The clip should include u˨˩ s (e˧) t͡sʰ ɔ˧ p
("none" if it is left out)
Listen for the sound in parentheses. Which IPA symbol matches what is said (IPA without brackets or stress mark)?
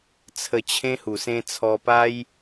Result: ẽ˧